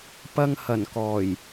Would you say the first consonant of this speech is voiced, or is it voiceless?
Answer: voiceless